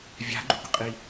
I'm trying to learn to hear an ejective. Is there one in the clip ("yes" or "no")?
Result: yes